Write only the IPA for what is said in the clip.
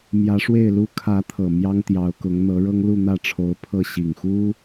mjä˧˥ʂwe˥˩ɪ̯lu˥ kʰä˧˥t̪ʰɤ˨˩ mjɑ˥ŋt̪jɑ˧˥ʊ̯kʊ˧˥ŋ n̪ɤ˧˥ɻɤ˥ŋ lu˥˧n̪ä˥˩ʈ͡ʂʰo˧˥ʊ̯pʰɤ˥˩ ɕi˨˩ŋxu˥

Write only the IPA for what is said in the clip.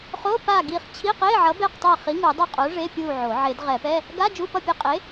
χo˧˥˧pa˦˨ɡi˦˨χ t͡ɕʰi˧˥˧qe˧˥˧ʕʌ˨˥ be˦˨qtˤɛ˦˨χi˨˥ ŋu˨˩˦dˤo˦˨qʼo˨˥ ʐe˧˥˧pʲu˦˨ ʕo˨˩˦ ʕe˨˩˦dʁɛ˨˩˦pɛ˧˥˧ | ɡa˧˥˧ d͡ʒu˧˥˧pʌ˦˨pʲe˦˨qʼe˨˥

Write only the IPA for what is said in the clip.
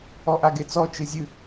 ɔʔaɡet͡sɔ t͡ʃɨzʲɨ

